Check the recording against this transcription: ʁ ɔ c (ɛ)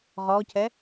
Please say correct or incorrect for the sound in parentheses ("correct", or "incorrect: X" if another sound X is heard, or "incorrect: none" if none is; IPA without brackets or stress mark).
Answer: correct